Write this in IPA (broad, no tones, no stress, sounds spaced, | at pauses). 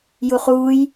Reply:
j u χ uː j